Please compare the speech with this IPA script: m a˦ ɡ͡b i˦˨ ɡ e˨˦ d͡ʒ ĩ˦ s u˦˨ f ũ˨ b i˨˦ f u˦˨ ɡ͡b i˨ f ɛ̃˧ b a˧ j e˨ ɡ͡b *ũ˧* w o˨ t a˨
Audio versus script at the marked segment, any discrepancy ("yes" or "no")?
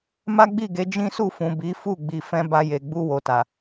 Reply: yes